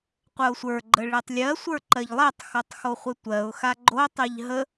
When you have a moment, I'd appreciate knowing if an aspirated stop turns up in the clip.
no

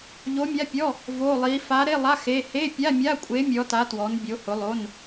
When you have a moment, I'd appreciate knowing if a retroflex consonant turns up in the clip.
no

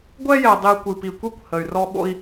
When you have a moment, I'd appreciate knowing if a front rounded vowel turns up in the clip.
yes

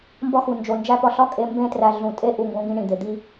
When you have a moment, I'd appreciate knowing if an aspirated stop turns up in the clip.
no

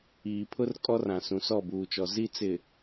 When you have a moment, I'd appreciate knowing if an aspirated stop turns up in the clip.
yes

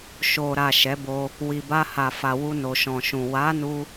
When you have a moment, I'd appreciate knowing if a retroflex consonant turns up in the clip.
no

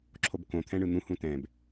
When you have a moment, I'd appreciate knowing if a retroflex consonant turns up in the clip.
yes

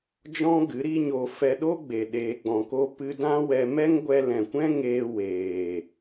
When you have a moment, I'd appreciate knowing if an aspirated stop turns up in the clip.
no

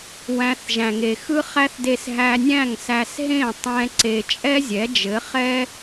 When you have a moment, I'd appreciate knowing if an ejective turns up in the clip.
yes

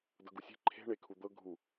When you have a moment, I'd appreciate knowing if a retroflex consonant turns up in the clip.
yes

